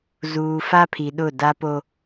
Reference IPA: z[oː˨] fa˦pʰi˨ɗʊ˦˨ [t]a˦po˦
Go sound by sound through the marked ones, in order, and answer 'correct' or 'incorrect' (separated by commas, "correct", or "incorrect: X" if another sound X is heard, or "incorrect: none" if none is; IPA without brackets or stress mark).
incorrect: uː˨, incorrect: d